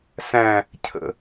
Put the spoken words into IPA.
sæ̃ | cʰə̰

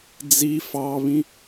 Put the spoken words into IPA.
d͡zi fɑβĩ

